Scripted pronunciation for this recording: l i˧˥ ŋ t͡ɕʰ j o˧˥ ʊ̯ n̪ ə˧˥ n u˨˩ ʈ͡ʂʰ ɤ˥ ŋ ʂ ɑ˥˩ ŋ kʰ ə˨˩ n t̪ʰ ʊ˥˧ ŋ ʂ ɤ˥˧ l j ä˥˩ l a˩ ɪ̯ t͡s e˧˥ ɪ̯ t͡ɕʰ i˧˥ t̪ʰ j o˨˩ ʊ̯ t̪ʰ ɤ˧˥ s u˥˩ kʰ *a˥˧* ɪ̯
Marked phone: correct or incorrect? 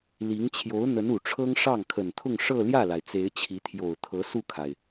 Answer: incorrect